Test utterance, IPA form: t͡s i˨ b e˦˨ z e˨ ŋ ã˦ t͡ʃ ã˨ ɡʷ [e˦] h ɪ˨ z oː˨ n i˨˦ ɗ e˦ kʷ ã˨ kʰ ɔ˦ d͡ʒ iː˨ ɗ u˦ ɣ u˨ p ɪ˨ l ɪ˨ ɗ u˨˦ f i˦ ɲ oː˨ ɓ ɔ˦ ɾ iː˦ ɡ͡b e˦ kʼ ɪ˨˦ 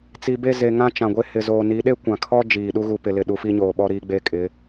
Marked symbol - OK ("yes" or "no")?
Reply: yes